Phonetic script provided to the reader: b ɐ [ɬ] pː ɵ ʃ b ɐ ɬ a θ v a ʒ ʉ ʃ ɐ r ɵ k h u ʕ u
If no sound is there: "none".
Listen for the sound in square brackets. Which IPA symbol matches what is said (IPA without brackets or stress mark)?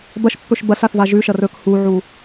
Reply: ʃ